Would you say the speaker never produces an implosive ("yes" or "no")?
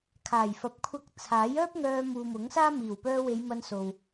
yes